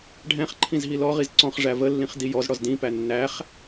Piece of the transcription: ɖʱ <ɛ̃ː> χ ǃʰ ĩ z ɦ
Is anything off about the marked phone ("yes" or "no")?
yes